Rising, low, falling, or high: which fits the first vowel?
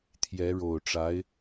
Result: rising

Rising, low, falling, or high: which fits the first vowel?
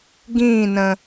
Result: falling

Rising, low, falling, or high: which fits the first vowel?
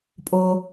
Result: low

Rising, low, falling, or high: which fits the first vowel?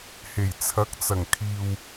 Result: low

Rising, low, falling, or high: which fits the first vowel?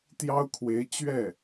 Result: high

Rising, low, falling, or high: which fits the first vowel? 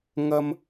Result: high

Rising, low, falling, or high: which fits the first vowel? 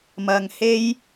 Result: low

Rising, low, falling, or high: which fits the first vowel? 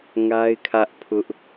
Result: high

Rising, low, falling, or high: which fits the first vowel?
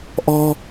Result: high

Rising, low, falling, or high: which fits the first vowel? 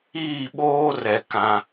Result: falling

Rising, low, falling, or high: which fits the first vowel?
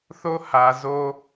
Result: high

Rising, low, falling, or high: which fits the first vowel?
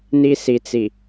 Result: high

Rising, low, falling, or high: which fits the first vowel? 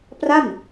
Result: falling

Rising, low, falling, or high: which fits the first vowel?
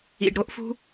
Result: low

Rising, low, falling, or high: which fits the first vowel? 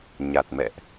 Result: low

